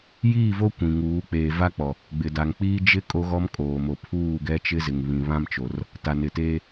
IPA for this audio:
j iː˦˨ v o˦ kʷ ĩ˨ ŋ uː˨˦ k͡p eː˨ v a˦ k͡p ɔ˨ | ɡ͡b ɪ˨ d a˨ ŋ k͡p iː˦ d͡ʒ ɪ˦ kʼ o˦ ɣ ɔ˦ m kʼ oː˨ m o˨ pʰ uː˦˨ ɡ ɛ˦ t͡ʃ ɪ˦ z ɪ˨ ŋ β ĩ˨ β ã˦ m t͡ʃ o˨ r | t a˨ n ɪ˨ t eː˦

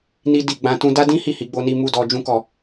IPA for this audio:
n i˦ d i˦˨ ɡ͡b ã˧ t ũ˦ d a˦ d ĩ˦ h i˦˨ h i˨˦ ɡ͡b o˦ n i˦ m u˦ d ɔ˧ d͡ʒ ũ˦ k ɔ˦˨

